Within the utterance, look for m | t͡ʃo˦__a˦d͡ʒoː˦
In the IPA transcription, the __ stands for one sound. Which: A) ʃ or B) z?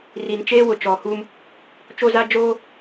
B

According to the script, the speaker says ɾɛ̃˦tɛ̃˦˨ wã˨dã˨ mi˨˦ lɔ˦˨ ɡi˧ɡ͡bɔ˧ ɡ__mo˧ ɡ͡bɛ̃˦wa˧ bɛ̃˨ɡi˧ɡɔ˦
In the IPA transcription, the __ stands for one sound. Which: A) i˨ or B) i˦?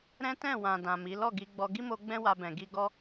B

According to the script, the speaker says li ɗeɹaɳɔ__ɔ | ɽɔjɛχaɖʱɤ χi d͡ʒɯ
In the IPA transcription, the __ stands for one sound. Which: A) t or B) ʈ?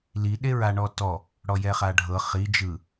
A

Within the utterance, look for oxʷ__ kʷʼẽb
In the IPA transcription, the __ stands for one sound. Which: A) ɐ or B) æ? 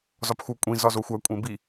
B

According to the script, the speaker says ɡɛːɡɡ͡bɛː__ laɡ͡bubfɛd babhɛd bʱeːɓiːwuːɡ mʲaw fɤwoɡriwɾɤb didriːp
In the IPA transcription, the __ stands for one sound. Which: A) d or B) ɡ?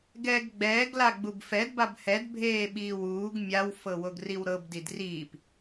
B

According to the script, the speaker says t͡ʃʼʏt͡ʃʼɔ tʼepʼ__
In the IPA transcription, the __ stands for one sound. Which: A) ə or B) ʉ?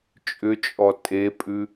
B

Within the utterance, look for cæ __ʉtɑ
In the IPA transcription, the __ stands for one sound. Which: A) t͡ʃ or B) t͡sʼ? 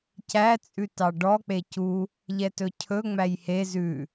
B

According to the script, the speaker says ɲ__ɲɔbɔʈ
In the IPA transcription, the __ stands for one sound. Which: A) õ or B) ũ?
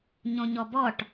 A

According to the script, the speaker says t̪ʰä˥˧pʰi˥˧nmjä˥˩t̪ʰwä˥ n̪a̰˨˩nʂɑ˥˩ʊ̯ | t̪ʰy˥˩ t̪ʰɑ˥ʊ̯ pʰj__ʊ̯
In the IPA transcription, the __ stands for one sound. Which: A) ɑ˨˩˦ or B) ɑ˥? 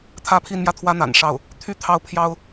B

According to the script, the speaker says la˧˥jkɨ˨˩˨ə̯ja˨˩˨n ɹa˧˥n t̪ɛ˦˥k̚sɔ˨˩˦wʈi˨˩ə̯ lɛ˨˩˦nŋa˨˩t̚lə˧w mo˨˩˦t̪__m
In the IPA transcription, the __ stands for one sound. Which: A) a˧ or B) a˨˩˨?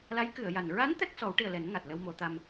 A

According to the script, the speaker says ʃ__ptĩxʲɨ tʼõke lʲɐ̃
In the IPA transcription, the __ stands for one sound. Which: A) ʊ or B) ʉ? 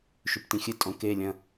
B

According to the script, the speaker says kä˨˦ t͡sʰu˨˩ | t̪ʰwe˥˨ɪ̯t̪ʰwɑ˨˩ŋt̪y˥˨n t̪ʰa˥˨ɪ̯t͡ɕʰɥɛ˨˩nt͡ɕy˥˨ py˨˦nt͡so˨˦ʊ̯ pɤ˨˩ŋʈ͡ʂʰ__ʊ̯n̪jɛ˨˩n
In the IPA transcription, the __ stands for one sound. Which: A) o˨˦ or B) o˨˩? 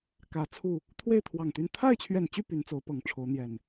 A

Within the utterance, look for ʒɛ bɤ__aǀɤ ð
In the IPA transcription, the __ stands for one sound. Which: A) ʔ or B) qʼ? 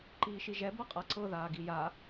B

